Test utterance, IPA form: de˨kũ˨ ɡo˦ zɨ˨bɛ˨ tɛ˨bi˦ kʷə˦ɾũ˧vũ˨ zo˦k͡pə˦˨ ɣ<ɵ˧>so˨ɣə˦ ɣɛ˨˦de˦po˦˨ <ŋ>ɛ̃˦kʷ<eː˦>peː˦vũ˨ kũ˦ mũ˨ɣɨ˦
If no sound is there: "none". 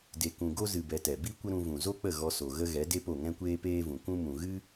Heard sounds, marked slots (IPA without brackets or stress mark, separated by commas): ɔ˧, ŋ, eː˦